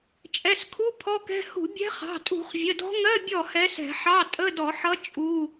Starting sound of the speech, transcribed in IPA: t͡ʃʼ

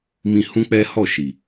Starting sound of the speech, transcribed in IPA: m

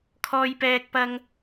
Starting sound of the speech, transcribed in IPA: kʰ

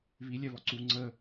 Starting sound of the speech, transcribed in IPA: β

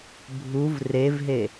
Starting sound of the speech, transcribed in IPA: bʱ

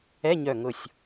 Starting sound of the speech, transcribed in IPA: ɛ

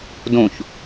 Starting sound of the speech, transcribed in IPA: d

